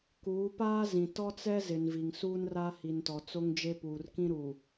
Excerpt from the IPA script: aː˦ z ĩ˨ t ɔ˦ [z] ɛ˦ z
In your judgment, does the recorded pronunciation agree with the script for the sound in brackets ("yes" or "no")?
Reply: no